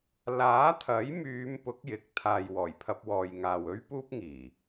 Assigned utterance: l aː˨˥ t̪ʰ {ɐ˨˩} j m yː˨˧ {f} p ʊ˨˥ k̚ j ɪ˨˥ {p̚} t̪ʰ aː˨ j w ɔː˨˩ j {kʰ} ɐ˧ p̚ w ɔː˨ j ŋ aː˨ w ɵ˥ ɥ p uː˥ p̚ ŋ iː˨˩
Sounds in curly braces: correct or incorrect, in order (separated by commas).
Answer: incorrect, incorrect, incorrect, incorrect